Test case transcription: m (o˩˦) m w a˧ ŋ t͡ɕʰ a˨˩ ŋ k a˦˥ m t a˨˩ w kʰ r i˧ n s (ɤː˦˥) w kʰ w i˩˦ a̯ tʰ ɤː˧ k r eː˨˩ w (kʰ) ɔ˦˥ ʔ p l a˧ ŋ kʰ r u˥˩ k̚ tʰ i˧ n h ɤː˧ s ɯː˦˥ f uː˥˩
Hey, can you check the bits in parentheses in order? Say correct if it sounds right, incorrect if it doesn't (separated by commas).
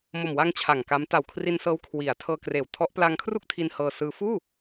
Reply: incorrect, correct, incorrect